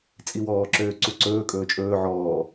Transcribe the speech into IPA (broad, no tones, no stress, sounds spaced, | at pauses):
t͡sʼ i w ɔː ǁ øː ǀ u ǀ ɵː kʼ ɵː t͡ʃʼ ɵː ʕ ɔː